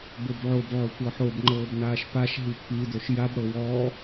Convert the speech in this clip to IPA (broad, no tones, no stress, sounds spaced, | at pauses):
b o b ʕ o b ʕ o tʷ ɤ ħ o b ŋ͡ǃ ɤː b n aː ʃ p a ʃ ɦ i pʰ i d o ʃ j a b ɽ ɤ w ɔː